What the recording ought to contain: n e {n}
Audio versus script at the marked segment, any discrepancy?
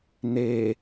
yes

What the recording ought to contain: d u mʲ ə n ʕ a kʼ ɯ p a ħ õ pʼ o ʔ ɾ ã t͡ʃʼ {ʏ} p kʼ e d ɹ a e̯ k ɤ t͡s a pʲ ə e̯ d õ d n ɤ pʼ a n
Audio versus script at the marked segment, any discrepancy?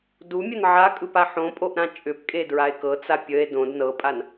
no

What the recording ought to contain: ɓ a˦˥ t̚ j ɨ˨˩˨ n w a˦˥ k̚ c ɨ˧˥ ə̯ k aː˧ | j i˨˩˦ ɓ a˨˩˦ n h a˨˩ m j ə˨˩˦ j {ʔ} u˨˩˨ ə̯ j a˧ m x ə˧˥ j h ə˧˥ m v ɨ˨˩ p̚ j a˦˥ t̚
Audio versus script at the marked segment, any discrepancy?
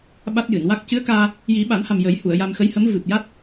yes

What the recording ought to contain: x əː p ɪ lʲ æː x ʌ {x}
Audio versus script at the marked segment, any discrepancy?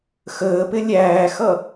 yes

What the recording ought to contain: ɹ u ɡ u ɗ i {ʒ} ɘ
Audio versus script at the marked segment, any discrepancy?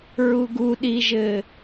no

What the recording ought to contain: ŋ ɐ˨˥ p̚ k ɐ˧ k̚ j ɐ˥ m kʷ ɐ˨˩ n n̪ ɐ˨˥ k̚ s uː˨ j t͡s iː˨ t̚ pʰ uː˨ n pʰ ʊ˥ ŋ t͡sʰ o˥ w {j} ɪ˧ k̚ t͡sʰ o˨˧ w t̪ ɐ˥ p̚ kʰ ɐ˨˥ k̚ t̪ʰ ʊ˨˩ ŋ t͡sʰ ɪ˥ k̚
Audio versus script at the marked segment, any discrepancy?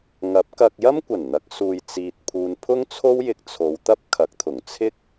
no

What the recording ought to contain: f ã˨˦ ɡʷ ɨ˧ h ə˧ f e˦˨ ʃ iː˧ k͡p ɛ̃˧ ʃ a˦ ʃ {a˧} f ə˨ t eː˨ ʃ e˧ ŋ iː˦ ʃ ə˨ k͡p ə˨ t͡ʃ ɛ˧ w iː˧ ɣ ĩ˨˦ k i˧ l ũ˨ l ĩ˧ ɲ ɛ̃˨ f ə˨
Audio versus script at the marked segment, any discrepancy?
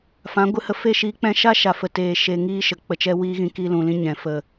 yes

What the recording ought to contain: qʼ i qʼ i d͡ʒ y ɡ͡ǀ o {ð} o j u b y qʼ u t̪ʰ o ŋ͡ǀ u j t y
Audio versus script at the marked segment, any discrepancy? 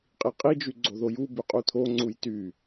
no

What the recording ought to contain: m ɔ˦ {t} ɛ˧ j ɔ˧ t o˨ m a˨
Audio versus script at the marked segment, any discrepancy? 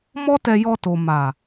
no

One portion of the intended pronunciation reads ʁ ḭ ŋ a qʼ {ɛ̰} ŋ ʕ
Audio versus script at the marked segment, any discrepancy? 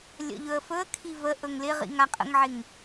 yes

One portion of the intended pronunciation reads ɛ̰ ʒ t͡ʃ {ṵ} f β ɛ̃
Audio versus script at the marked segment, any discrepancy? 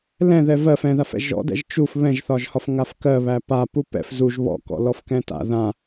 yes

